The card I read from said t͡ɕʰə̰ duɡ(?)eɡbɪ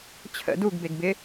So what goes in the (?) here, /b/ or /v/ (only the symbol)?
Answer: b